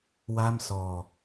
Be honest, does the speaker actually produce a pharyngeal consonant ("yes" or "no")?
no